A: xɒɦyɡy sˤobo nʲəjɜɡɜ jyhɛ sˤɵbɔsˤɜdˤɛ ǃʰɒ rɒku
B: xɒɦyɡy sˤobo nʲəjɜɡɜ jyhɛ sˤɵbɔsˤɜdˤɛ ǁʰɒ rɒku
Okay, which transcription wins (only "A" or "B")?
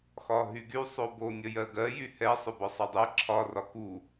B